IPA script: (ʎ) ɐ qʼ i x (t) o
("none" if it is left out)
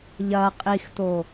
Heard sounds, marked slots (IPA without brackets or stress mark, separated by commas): ʎ, t